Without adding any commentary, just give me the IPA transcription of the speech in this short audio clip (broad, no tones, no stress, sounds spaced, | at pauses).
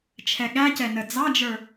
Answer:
t͡ʃʰ ɛ ɠ æ c ɛ n ə d͡z ɑ d͡ʒ ə˞